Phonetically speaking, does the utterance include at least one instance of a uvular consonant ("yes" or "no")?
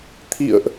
no